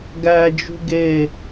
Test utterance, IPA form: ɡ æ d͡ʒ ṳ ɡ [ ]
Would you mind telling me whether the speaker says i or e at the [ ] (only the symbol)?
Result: e